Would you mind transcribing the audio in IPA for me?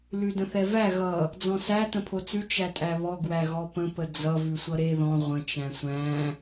l ʉ d ə̃ θ ɛ v æ ɣ ʌ | d͡z ɔ̃ s æ t ə̃ pʰ o t͡s ʉ t͡ʃ æ tʼ æ β ɔ ɡ w æ ɣ ɔ p ə̃ p ə d͡z ʌ v ʉ sʷ ʌ ɾ e ð ɔ̃ ʁʷ ə̃ t͡ʃ æ̃ sʷ æ̃

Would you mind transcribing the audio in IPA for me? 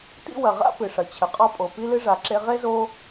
t ḭ˦ w ɐ˩ ʁ a̰˥ p ɨ˩ ʂ ɐ˩ t͡ɕʰ ɘ˩ qʼ ɔ˦ pʼ o˩ p i˥ l ɨ˥ ʐ a˩ ǁ e˦ ʁ e˥ z o˦

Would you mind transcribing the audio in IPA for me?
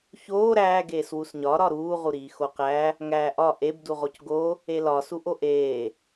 ç oː ɾ æː ɡ eː s w u s ɲ ɒ ɾ ɒ ɾ uː ʁ u ɾ iː x o q æ | ŋ æː ʔ ɒ ʔ e b d u ʁ o c ɡ o | e l ɒ s u ʔ o ʔ eː

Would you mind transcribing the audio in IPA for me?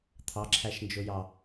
t̪ʰ ɑ ǁʰ æ ʃ n d͡ʒ ʊ j ɑ

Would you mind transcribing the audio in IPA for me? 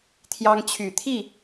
t̪ʰ j ɑ˦ ŋ t͡ɕʰ y˨˩ t̪ʰ i˥˨

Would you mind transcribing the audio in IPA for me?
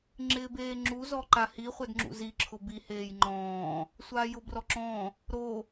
ŋ͡ǁ ɪː b eː ŋ͡ǁ u z ɔ ǃ a h i χʷ ɛ d ŋ͡ǁ ṵ z i ǁʰ ʊ b i h eː j ŋ͡ǃ ɔ̃ː | sʷ aː j ʊ b r ɔ ǁ ɔ̃ | ɾ o

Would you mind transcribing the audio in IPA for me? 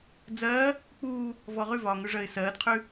d͡z ɜː | k͡p uː | v ɔ ʁ ʉ v ɒː ŋ ʉ ʐ ɜ ɪ̯ s ɜː d qʰ ʉ

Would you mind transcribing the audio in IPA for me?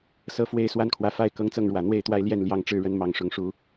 s ɤ˦ f w e˥˨ ɪ̯ s w a˥˨ n kʰ w ä˨˦ f a˥˨ ɪ̯ k ɤ˦ ŋ t͡s ɤ˥˨ ŋ ɻ w ä˨˩ n̪ w e˥˨ ɪ̯ t̪ w a˦ ɪ̯ l j ɛ˥˨ n l j ɑ˦ ŋ ʈ͡ʂ ɻ̩˦ ɻ ə˨˦ n m ɑ˨˩ ŋ ʂ ʊ˨˦ ŋ ʂ u˨˦

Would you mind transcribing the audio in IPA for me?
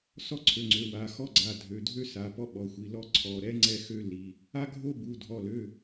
s ɔ˥ ǀʰ ø˩˧˩ ŋ͡ǀ ø˩˧˩ w a˩˧˩ x ɔ˥ ɡ͡ǀ a˩˧˩ dʱ ø˩˧˩ dʱ ø˥ s a˩˧˩ p ɔ˥ ɓ ɔ˩˧˩ xʷ i˩˧˩ l ɔ˥ ǀʰ ɔ˩˧˩ ɾ ɛ˥ ŋ͡ǀ ɛ˥ x ø˥ l i˩˧˩ | a˥ ɡʱ o˥ b u˩˧˩ dʱ ɔ˩˧˩ l ø˩˧˩

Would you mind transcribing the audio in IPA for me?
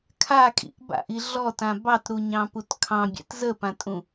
kʰ a kʼ ḭ ʔ b a̰ ʔ i ɮ ɔ t ã b ɑ t ɾ u ɲ ɑ̃ p u t kʰ ɑ̃ bʲ ɛ̰ t z ə p ã tʼ ũ

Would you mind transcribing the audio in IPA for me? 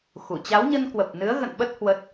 x u˧˩ t͡ɕ a˨˦ w ɲ ə˧ n k w ə˨˩ p̚ n ɨ˨˦ ə̯ ɣ ə̰˧˨ n ɓ ə˦˥ t̚ h w ə˦˥ t̚

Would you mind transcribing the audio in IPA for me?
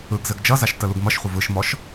ɯ ɡ z ɘ ɡ d͡ʒ ʌ z a ʃ t ə l u ɡ m ʌ ʃ χʷ ə v ɯ ʃ m ɔ ʃ

